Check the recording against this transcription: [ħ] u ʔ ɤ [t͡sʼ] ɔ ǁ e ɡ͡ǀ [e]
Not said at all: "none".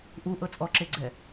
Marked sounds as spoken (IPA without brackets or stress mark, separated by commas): ʔ, t͡sʼ, ɛ